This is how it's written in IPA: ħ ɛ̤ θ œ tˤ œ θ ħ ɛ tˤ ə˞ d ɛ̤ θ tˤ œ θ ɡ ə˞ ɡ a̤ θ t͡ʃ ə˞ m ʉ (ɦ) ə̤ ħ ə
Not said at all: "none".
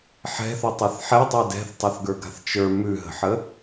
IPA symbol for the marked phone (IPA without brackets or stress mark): ɦ